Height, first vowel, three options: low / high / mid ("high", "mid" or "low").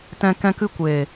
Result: mid